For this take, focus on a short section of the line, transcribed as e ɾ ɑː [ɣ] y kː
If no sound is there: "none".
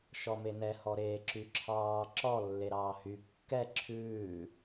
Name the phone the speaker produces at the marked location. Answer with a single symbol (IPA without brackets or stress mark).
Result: h